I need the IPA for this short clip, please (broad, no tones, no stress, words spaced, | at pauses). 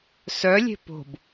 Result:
sœlʲe̤ po̤b